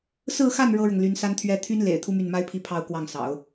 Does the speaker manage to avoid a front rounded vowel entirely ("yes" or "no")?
no